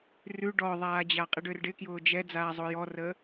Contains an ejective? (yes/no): yes